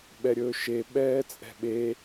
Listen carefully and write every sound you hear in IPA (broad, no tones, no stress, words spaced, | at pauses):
ɓɛɾʲɵːʃe ɓɛːt͡sʼɛ̤ɓe